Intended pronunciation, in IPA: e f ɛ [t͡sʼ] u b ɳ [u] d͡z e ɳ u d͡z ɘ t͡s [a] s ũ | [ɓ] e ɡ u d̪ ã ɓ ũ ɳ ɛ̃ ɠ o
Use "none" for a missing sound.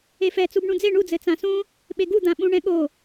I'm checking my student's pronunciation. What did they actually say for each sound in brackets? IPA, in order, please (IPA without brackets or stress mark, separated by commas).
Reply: t͡s, ũ, ã, ɓ